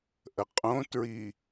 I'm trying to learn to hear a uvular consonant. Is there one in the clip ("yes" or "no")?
yes